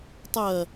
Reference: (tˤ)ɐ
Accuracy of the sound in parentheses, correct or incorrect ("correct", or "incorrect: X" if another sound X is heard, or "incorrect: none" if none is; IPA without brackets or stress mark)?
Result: correct